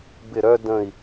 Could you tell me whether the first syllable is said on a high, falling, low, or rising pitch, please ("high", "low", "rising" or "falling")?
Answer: falling